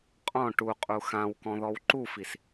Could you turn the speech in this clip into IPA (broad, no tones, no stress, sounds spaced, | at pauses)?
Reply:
qʼ ɔ̃ ʈ u qʼ u x ã w k ɔ̃ ð ɔ w ǃ u f i s